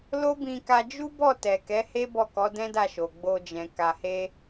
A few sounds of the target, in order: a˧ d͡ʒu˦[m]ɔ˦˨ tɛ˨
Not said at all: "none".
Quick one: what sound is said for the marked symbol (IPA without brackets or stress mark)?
b